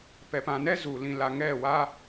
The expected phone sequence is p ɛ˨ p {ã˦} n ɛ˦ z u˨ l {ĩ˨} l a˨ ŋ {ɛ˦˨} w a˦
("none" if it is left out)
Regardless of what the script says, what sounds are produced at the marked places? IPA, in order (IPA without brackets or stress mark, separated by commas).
ã˨, ĩ˨, ɛ˦˨